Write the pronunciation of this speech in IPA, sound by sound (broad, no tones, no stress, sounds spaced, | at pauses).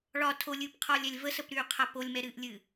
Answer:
ɭ ɒ tʰ o lʲ ɨː p qʰ ɒː lʲ ɛ lʲ v ə s ə p ɾ yː qʰ a p o lʲ m ɛ ɾ ɨː ʔ lʲ ɨː